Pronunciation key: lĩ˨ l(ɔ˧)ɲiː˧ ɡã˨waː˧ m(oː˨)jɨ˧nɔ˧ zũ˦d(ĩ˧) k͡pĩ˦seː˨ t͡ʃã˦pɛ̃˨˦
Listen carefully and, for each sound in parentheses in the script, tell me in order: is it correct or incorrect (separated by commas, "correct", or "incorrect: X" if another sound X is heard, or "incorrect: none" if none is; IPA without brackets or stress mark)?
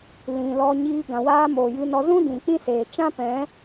correct, correct, incorrect: ĩ˨